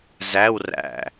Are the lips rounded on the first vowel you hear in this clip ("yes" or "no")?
no